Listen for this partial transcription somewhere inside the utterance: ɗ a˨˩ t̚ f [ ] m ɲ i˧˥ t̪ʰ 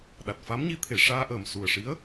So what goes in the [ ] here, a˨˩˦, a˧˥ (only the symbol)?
a˧˥